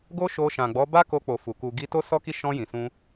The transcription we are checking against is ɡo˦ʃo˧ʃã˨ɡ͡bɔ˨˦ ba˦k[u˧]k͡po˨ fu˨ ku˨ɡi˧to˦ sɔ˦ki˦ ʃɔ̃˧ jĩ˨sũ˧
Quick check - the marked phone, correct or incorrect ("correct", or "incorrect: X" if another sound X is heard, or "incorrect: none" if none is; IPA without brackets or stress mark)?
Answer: incorrect: o˧